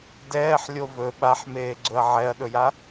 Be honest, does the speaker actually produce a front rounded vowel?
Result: no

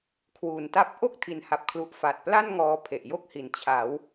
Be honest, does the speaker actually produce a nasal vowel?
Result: no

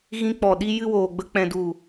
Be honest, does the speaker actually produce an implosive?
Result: yes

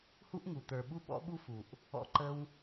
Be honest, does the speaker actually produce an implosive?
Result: yes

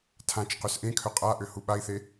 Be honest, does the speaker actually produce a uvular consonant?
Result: yes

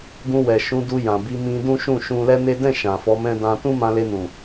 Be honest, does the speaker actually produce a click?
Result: no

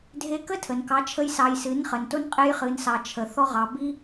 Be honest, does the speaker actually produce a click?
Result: no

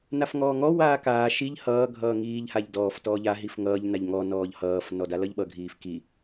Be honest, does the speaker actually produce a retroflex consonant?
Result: no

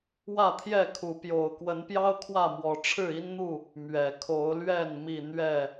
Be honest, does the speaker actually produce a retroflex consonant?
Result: yes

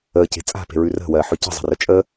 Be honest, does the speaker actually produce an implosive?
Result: no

